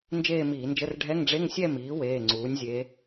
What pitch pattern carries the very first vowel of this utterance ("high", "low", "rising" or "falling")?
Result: falling